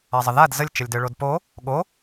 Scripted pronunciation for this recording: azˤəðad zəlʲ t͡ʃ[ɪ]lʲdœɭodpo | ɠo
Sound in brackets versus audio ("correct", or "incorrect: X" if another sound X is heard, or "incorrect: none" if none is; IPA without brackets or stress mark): incorrect: ə